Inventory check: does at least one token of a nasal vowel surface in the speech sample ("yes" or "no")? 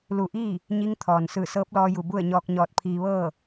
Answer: no